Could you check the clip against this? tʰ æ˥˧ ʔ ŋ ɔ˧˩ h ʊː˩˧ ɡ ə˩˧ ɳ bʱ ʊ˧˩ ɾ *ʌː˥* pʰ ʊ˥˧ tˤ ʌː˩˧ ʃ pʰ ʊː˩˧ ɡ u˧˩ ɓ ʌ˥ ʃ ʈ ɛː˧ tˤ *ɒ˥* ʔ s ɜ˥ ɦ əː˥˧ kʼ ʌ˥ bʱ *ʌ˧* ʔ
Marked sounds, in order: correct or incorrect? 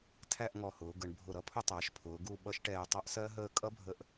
incorrect: ʌ˥, incorrect: ɑ˥, incorrect: ə˧

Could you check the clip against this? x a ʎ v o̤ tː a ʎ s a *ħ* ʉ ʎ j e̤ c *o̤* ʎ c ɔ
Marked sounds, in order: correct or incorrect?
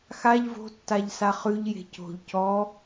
incorrect: χ, correct

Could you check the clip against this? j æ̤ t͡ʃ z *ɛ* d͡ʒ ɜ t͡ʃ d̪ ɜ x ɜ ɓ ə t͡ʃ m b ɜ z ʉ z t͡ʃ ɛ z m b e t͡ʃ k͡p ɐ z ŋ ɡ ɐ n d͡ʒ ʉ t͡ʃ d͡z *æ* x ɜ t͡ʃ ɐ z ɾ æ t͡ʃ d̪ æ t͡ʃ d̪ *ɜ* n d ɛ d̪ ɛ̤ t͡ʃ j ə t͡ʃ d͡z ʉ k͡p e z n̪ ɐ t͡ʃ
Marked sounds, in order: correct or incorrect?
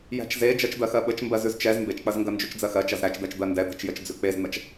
incorrect: e, incorrect: ɜ, correct

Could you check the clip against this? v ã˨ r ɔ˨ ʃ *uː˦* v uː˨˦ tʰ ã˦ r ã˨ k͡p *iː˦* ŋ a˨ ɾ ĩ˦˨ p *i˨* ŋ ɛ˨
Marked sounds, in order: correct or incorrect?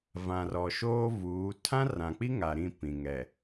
incorrect: oː˦, incorrect: i˦, incorrect: ĩ˨

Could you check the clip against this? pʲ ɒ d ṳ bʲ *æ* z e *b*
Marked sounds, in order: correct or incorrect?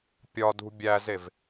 correct, incorrect: v

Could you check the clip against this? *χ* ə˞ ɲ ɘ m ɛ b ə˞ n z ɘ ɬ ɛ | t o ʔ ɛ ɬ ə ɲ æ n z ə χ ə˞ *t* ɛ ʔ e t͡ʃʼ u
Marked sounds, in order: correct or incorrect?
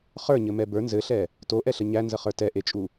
correct, correct

